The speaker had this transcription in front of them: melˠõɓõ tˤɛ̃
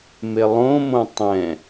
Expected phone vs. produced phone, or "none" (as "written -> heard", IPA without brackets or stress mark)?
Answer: ɓ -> m